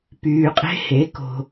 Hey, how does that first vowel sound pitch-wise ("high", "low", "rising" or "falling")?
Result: low